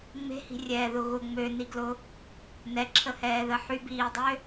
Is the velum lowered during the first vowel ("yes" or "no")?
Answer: no